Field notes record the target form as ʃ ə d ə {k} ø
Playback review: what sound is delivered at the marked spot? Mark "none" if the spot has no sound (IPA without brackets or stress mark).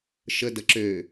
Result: ǁ